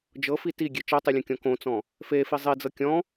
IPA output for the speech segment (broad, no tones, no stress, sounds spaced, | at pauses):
d͡ʒ ɤ f i t i ɡʲ e t͡ʃ ɤ tˤ i lʲ õ kʲ ɔ̃ k õ t͡s ɔ̃ | f e f i zˤ i d͡z ɤ kʲ ɔ̃